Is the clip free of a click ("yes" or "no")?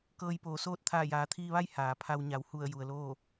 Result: yes